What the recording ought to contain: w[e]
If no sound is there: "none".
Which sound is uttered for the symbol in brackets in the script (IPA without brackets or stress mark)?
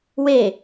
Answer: e